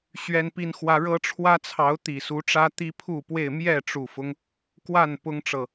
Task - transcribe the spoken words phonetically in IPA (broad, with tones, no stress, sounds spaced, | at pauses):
ɕ ɥ ɛ˦ n p i˦ n x w ä˦ ɻ ɤ˦ ʈ͡ʂʰ w ä˦ t͡sʰ ɑ˨˦ ʊ̯ t̪ i˨˩ s u˨˦ ʈ͡ʂ ä˦ t̪ i˦ pʰ u˥˨ p w e˥˨ ɪ̯ m j ɛ˥˨ ʈ͡ʂ u˨˩ f ʊ˦ ŋ | k w a˥˨ n p ʊ˦ ŋ ʈ͡ʂ ɤ˨